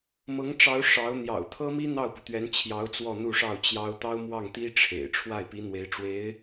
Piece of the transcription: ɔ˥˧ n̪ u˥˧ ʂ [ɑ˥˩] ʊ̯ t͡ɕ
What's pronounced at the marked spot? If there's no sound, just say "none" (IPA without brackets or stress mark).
ɑ˥˩